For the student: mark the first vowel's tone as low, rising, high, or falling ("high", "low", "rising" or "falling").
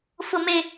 low